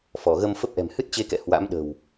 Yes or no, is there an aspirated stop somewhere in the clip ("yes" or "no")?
no